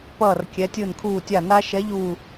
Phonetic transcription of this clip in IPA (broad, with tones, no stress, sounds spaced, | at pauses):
p ʌː˧˩ r kʲ ɛ˩˧ tʲ ɯ˧˩ n kʰ uː˧˩ tʲ a˧˩ n aː˦ ʃ ɛ˨˥ ʎ uː˧˩